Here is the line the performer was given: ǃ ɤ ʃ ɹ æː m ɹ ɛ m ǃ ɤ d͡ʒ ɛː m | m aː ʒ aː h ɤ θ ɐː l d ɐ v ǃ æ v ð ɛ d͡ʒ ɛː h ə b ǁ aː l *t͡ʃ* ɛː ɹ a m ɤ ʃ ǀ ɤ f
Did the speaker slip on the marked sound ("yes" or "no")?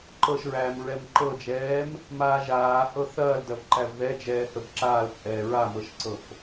yes